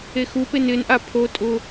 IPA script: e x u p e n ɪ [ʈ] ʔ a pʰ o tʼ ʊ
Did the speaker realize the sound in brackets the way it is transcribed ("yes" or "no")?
no